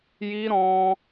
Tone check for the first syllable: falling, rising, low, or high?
high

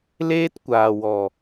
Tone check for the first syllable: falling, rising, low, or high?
high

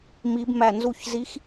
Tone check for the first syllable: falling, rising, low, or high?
rising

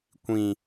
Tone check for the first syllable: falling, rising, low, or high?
low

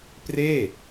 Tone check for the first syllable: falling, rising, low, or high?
falling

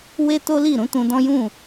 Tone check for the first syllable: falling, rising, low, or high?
high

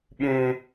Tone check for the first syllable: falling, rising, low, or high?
high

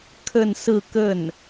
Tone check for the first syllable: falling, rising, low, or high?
falling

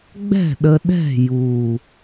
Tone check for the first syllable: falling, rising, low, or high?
falling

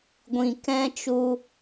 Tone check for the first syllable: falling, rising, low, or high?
low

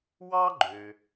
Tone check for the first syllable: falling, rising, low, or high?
high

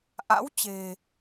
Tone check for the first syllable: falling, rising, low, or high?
rising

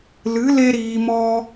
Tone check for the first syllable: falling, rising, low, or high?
rising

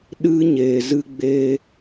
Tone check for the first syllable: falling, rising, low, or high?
high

